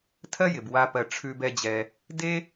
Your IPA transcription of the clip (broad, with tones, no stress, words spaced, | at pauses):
tʰɜ˥jɪ˩b wa˨pɜ˩ ʈ͡ʂʰʉ˨bɛ˨d͡ʑɛ˩ | de˥